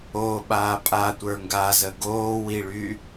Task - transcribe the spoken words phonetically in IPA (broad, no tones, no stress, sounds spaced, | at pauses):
o ɓ aː pʼ a tʷ ə˞ ŋ ɡ a z ə ɡ oː w i ɭ y